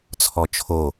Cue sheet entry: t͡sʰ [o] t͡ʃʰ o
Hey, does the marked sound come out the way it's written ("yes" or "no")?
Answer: no